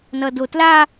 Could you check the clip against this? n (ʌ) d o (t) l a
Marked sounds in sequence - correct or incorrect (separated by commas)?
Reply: correct, correct